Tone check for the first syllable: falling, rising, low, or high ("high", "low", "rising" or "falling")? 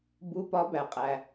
rising